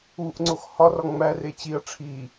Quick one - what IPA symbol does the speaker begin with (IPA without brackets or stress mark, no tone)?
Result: u